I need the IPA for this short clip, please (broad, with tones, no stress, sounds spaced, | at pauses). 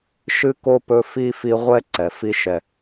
ʃ ɨ˥ k o˥ p ɵ˦ f i˥ f i˦ ʁʷ ɛ˥ ǀ ɛ˩ f i˦ ʃ ɛ˨